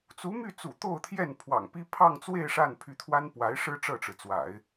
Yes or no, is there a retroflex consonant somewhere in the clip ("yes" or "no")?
yes